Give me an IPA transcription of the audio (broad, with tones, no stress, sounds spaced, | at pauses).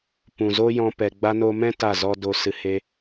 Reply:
p ũ˨ z o˦ j ɔ̃˧ p ɛ˨ ɡ͡b a˧ n o˧ m ɛ̃˦ t a˦˨ z ɔ˦ d o˧ s ɨ˨ h e˧